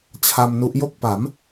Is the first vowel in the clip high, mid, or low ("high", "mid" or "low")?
low